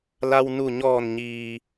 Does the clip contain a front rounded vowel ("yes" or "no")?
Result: no